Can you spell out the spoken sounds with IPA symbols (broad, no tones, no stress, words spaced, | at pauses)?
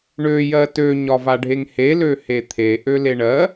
ɳøjɜ tøɲɒvaɖʱeŋ helø het̪ʰe ʔøleɳɜ